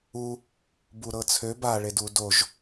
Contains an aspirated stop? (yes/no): yes